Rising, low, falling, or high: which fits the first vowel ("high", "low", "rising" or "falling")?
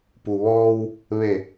low